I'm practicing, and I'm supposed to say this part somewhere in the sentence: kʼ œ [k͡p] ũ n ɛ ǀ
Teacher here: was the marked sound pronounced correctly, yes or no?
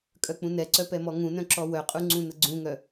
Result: yes